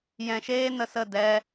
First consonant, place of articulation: palatal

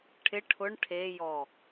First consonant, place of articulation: retroflex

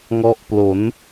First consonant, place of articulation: velar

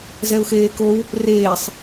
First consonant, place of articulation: alveolar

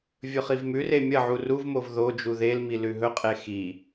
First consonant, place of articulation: labial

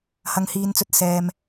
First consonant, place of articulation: glottal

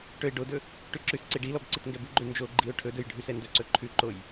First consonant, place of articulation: retroflex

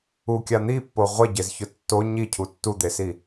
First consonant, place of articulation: velar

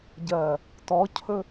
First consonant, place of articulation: palatal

